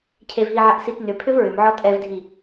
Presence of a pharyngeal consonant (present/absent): present